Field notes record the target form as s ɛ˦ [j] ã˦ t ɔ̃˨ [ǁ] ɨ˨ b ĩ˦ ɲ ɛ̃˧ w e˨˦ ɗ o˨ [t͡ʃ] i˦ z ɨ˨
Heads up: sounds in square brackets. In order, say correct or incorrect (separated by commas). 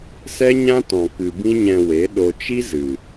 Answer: incorrect, incorrect, correct